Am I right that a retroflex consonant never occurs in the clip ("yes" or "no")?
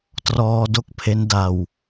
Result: yes